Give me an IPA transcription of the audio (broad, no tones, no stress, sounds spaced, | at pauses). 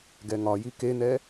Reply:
ɡ ɛ ŋ ɒ j i k e n̪ ɛ